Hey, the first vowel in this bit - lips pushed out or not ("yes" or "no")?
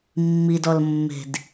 no